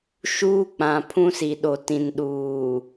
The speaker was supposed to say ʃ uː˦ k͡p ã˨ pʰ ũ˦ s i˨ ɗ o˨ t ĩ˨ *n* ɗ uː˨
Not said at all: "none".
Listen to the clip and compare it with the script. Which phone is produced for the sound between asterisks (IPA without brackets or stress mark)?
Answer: n